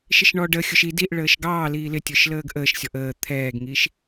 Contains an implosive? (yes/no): no